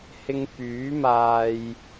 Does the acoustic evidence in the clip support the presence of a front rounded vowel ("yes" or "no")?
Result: yes